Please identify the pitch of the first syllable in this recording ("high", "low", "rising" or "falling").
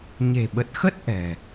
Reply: low